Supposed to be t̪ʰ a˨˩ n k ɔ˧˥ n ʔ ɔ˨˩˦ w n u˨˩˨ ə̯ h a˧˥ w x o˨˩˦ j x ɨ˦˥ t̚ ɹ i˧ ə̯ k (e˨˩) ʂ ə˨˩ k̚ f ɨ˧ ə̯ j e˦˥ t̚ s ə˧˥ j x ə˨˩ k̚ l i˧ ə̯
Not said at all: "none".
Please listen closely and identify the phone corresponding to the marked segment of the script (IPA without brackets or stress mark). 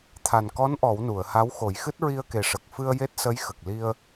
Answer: e˨˩